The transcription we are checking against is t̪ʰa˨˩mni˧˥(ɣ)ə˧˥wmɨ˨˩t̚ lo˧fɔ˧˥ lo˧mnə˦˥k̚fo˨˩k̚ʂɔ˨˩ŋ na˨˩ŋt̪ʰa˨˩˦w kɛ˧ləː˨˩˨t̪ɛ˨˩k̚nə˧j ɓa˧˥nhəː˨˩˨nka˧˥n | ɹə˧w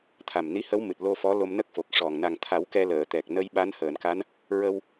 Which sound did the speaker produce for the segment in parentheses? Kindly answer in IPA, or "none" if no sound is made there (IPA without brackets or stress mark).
h